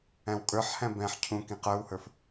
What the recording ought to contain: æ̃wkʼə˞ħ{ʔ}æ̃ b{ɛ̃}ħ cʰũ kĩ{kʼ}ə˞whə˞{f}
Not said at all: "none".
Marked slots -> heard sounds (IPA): h, ɛ̃, q, f

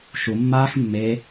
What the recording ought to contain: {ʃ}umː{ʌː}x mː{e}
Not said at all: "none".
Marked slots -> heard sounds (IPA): ʃ, aː, e

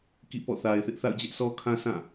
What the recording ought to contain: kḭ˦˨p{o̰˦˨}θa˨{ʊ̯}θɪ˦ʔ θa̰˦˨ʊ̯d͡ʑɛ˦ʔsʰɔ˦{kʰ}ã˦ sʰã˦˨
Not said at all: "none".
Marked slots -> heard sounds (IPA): ɔ̰˦˨, ɪ̯, kʰ

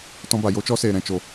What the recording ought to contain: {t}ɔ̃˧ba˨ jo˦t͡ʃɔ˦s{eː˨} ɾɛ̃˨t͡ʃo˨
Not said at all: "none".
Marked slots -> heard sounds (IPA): t, eː˨

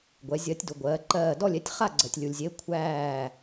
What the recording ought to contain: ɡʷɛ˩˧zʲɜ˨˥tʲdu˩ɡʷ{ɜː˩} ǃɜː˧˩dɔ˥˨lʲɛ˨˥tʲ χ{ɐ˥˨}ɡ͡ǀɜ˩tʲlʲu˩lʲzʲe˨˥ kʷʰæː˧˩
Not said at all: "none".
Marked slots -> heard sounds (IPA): ɜː˩˧, a˥˨

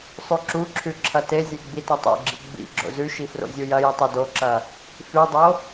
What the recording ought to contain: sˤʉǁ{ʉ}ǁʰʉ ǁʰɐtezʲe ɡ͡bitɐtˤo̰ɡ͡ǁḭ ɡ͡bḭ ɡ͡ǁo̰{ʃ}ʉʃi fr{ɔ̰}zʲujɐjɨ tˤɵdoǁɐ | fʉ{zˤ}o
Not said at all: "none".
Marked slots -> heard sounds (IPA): u, z, o̰, dˤ

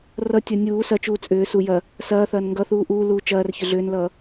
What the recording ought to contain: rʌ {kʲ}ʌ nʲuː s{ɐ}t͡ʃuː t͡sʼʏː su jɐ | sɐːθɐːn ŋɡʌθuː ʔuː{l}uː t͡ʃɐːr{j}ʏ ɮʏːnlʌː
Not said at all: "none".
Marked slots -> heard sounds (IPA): tʲ, ɐ, l, ç

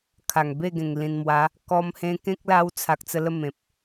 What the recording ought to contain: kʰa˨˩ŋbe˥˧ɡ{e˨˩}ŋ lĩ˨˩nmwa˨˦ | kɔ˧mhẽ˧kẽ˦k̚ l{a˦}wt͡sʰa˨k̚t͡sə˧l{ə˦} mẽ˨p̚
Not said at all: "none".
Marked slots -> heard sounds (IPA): ẽ˨˩, a˦, ə˥˧

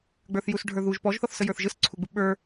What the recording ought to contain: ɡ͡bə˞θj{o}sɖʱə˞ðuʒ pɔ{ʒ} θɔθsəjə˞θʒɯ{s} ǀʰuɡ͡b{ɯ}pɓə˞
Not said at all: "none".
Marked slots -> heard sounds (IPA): u, ʒ, s, ɯ

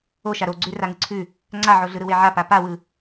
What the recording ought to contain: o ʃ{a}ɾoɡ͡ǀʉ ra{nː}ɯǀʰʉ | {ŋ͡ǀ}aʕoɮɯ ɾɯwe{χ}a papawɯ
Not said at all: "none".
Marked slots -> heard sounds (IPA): a, ŋ, ŋ͡ǀ, ʕ

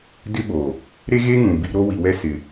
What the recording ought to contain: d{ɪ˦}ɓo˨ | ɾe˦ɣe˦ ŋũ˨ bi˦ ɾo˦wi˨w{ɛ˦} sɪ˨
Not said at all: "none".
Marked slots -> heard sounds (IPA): ɪ˦, ɛ˦

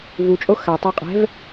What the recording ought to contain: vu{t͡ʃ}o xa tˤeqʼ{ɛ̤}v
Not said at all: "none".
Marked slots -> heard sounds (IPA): t͡ʃʼ, ɛ̤

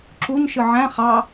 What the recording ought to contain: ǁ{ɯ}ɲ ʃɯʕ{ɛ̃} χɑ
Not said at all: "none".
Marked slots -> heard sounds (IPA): u, æ̃

